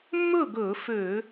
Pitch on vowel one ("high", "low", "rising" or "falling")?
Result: falling